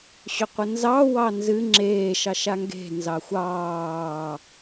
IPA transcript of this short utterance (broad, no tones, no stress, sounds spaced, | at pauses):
ɕ ʏ qʷ ə n z ɑ w ɑ n z ɨ ŋ͡ǁ eː ʃ ɑ ʃ a ŋ ɡ e̤ n z ɑ xʷ ɑː